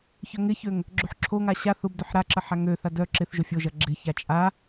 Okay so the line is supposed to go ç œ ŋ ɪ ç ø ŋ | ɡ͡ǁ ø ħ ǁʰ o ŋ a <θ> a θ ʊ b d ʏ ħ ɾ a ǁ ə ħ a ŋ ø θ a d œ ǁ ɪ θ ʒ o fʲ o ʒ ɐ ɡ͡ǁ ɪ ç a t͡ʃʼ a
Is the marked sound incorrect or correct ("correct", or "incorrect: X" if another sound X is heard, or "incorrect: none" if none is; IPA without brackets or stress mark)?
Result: incorrect: ɕ